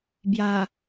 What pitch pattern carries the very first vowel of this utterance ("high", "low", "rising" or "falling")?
low